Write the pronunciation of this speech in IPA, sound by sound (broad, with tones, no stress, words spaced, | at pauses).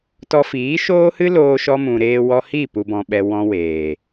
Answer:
tɔ˧fiː˨˦ʃoː˦hɨ˦ loː˧ʃɔ˧mũ˨ ɾeː˧wɔ˧ hiː˦˨pu˨bɔ̃˨ɓɛ˨ wɔ̃˧ weː˨